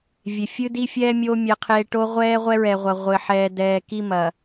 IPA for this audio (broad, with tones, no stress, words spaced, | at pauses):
vʲe˨fʲɨ˦di˦fʲɛː˦ mʲoː˦ mʲɛ˨qʰeː˨ ʈo˦ʁʷɛː˦ʁʷɛ˦ɹɛ˨ ʁʷɐ˨ʁʷɘ˨ ħɛː˨dɛː˨ ki˦ mɐ˨